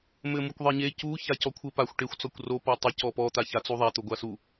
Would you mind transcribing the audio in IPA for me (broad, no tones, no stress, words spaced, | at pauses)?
mɘmukʷðˤeɲe cu çacɔkʷʰɘ paxʷ ʈexʷ t͡sɔkʷro pɔtˤɘ cɔpɔ t̪açat͡suðˤa t̪oɡʷasu